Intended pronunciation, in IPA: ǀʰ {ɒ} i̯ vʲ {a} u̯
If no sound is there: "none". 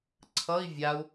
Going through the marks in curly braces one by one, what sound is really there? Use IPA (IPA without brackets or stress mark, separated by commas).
ʌ, a